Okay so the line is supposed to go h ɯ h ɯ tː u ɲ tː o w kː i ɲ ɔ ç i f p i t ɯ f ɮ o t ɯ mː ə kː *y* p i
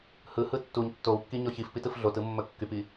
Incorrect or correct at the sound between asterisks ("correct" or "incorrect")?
correct